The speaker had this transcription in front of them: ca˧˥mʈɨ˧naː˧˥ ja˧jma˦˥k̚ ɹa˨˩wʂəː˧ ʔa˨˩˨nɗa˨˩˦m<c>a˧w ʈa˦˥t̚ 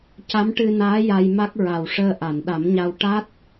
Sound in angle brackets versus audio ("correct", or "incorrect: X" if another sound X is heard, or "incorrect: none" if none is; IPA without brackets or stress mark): incorrect: ɲ